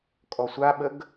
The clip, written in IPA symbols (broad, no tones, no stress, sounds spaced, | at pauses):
kʼ ɔ sʷ a ɓ ə ɡ